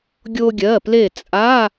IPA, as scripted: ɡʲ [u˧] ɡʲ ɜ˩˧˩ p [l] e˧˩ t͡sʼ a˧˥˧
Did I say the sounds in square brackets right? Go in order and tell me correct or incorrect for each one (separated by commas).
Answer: incorrect, correct